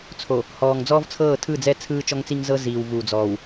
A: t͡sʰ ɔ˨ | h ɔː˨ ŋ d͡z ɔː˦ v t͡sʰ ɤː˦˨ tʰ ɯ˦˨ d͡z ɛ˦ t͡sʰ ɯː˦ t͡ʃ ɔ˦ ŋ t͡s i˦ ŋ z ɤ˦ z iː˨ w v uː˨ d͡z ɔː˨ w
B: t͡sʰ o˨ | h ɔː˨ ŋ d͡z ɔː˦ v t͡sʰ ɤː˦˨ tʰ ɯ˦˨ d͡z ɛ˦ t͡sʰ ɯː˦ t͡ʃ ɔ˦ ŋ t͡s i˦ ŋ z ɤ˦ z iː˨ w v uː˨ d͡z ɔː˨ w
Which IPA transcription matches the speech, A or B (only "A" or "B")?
B